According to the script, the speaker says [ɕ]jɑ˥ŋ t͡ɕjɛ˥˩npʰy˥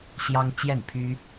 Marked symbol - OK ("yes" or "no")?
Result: yes